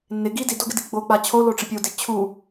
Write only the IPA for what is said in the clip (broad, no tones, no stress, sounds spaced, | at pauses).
nː ɪ ɡ i d i d o ɡ ɪ d i ɡ͡b o k͡p a t͡ɕʰ o l o ʈ͡ʂ ɪ pʲ o d ɪ t͡ɕʰ u